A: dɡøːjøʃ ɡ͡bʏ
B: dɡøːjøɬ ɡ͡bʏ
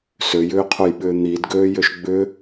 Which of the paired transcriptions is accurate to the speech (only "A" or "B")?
A